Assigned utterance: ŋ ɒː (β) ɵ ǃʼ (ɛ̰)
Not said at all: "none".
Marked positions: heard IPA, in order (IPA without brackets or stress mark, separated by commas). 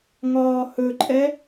h, ɛ